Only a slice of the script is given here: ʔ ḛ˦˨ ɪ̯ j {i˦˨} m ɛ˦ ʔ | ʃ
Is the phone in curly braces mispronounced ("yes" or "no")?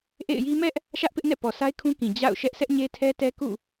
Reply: yes